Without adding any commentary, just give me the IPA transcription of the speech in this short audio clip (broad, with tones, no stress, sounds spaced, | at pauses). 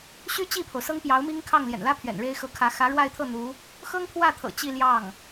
ɕ y˥ t͡ɕ i˥˩ pʰ o˩ ʊ̯ s ɤ˥ ŋ p j ɑ˧˥ ʊ̯ m i˥ ŋ kʰ ɑ˥˩ ŋ l j ɛ̰˨˩ n l ä˥ pʰ ɥ ɛ̰˨˩ n ɻ e˥ ɪ̯ x ɤ˧˥ kʰ ä˧˥ x ä˧˥ ɻ w a˥˧ ɪ̯ t̪ʰ ɤ˥˩ n̪ u˧˥ | x ɤ˥ ŋ pʰ w ä˥˩ t̪ʰ ɤ̰˨˩ t͡ɕ i˥˧ l j ɑ˥˩ ŋ